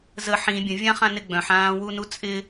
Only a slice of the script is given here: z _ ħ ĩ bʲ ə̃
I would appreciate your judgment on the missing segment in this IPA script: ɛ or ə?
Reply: ə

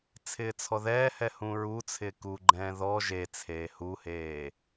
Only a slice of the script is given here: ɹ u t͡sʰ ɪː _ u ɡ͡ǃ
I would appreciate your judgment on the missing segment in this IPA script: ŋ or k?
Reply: k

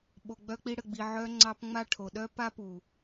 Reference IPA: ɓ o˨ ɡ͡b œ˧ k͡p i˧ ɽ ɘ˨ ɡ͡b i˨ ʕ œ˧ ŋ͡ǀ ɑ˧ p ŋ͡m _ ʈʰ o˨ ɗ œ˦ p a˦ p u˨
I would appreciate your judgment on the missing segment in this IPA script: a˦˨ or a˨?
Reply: a˦˨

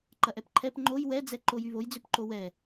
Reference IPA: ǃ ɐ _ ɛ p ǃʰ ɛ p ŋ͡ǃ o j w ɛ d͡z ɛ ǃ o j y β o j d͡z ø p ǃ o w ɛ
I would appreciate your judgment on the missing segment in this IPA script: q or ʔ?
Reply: ʔ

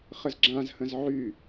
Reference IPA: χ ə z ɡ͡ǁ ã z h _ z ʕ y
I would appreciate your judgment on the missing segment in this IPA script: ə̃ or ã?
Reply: ə̃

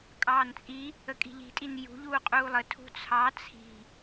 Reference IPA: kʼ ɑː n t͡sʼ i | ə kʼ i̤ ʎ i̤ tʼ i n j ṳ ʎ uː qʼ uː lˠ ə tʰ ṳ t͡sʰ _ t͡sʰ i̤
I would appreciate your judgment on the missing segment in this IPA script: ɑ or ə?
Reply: ɑ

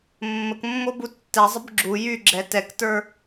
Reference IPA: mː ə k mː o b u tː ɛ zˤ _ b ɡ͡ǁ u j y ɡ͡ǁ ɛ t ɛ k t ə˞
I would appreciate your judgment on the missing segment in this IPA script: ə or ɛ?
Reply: ə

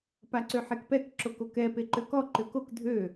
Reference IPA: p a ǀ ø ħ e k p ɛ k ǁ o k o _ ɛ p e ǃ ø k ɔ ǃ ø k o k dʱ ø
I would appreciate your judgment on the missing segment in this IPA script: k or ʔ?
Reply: k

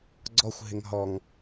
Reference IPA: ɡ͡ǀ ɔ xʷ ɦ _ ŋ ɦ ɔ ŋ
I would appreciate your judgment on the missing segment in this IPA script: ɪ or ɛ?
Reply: ɪ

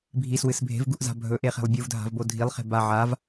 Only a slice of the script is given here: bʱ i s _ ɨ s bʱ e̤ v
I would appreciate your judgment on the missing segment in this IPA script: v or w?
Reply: w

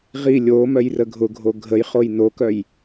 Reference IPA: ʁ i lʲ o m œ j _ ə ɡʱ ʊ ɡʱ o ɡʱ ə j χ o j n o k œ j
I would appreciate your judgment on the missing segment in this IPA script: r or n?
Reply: r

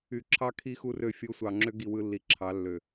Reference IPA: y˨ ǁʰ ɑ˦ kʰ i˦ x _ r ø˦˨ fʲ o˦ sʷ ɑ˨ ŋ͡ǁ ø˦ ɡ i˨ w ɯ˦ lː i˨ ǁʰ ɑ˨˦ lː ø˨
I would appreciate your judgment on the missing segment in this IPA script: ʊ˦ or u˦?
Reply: u˦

